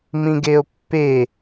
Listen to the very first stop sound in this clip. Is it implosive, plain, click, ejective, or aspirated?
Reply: plain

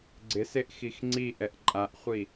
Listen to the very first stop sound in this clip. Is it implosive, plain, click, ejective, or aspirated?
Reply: click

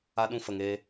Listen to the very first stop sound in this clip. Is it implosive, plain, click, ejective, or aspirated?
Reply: implosive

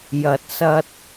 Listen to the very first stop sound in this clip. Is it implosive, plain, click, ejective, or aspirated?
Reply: plain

